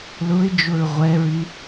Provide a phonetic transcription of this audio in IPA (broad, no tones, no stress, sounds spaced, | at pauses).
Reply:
l ʊ ɪ̯ d͡ʒ ʊ ɹ ʁʷ ɛ ɹ y